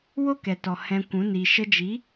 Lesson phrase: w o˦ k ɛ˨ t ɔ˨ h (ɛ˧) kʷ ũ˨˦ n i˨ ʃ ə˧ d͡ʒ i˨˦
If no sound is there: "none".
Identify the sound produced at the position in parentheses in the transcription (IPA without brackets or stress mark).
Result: ɛ̃˧